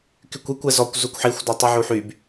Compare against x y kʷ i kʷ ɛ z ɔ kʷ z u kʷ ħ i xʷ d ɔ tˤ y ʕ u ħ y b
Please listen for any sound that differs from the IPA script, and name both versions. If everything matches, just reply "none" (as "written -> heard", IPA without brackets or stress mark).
x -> k